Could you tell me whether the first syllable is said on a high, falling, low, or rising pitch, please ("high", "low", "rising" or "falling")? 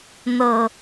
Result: low